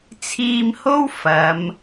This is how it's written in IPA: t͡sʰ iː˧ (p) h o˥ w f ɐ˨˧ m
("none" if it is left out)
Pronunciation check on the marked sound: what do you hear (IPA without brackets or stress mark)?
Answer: m